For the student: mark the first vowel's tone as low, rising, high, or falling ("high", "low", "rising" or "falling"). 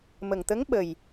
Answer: low